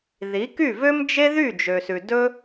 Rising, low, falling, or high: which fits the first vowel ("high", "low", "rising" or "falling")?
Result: rising